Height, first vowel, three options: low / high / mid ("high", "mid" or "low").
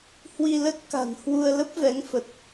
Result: high